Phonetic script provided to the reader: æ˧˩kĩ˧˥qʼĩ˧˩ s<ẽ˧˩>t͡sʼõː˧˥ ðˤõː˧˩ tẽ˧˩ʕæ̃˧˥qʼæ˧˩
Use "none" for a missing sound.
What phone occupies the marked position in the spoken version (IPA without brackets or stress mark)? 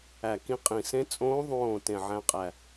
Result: ẽ˧˥